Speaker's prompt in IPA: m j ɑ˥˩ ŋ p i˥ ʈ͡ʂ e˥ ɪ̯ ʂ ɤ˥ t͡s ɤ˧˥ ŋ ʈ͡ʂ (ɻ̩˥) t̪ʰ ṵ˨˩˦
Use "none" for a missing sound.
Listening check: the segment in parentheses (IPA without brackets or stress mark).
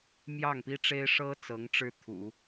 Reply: ɻ̩˥